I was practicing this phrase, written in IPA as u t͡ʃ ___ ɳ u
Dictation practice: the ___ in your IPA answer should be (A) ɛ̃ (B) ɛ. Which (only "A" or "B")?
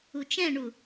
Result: A